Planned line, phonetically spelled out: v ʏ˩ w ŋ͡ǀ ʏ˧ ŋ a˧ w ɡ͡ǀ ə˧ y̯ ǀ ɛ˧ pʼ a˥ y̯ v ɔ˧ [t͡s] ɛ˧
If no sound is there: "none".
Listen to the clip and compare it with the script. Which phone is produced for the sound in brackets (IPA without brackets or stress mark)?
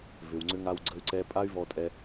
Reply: tʼ